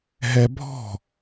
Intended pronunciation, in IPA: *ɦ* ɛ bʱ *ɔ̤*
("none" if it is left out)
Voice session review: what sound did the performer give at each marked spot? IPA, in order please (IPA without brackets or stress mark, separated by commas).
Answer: ɦ, ɔ̤